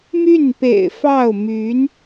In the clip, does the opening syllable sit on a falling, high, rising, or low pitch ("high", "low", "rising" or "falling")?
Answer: falling